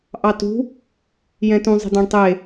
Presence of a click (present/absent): absent